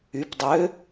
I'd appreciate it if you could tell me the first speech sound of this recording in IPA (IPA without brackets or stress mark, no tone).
y